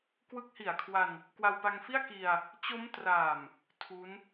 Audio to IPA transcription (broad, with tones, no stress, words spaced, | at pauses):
kwɯ˦˥k̚hi˨˩a̯kʰwa˧n | kwa˧wpa˧ŋfi˥˩a̯ ki˧a̯ | t͡ɕo˦˥mtra˨˩m | tʰu˦˥n